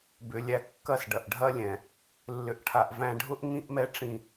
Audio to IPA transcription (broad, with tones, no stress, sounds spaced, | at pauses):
b ʏ˨ lʲ æ˨ kː ɐ˦ s ɖ ɐ˨ ʔ ɖʱ ɐ˦ lʲ ɛ̃˨ | lː ʏ˨ ʔ ʈʰ a˨ ʔ v æ̃˨ ɖʱ ʊ˦ ʔ ŋ ĩ˦ ʔ m ɛ˦ ʈ͡ʂ ĩ˦˨